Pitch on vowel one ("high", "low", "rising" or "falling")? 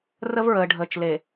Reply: high